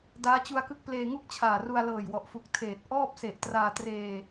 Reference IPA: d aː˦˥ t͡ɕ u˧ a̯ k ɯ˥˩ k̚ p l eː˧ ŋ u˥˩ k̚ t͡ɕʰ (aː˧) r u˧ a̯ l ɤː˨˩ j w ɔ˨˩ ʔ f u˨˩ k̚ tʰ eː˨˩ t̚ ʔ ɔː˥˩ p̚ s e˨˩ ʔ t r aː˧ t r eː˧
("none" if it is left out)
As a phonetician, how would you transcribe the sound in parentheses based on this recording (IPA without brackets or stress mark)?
aː˨˩